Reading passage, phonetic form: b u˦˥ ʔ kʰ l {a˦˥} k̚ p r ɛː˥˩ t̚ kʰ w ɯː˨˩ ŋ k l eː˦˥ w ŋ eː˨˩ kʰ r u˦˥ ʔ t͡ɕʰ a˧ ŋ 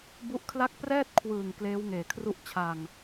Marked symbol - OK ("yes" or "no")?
no